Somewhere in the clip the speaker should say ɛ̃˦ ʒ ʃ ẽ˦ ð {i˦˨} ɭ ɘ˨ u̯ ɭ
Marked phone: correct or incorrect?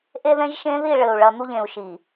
correct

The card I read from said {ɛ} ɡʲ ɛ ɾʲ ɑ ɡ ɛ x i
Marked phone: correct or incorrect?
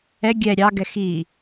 correct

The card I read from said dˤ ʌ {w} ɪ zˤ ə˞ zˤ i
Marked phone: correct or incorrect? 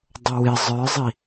correct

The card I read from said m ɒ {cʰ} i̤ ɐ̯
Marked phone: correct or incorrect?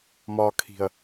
incorrect: kʰ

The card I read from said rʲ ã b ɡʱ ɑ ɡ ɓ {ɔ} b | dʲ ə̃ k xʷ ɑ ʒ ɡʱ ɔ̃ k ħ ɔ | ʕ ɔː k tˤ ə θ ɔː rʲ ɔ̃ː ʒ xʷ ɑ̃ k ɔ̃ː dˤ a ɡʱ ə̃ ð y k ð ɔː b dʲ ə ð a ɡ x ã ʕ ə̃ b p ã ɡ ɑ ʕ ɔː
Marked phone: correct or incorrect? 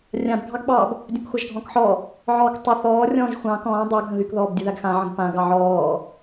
incorrect: ɑ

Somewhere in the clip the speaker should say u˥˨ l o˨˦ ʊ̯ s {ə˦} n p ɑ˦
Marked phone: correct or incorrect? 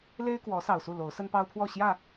correct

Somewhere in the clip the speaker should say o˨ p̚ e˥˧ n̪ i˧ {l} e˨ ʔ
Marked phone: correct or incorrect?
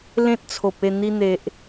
incorrect: n̪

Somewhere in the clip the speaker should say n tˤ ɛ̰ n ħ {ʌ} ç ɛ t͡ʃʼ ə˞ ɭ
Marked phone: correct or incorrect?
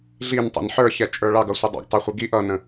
incorrect: ə˞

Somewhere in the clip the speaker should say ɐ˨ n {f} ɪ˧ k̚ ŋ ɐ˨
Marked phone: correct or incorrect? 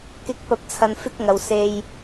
correct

